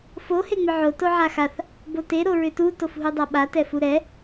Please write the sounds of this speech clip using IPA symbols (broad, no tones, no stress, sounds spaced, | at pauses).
f o h e ŋ͡m ʏ ʕ o t o ʕ a x a θ | b o t e ɾ o ɹ ʏ t u t o f ɦ u dˤ a ɓ a t ɛ f u ɾ ɛ